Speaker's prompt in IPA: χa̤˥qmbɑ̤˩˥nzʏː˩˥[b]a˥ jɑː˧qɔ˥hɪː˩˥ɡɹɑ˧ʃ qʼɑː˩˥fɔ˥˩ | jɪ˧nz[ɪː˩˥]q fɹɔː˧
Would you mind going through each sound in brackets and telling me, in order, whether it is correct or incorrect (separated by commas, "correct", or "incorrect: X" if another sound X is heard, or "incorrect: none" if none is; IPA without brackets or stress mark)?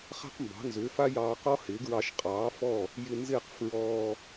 incorrect: f, incorrect: ɪː˥˩